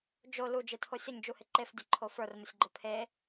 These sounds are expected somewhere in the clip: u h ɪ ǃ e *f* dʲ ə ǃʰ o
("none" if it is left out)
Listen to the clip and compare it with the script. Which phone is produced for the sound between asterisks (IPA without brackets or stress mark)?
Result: f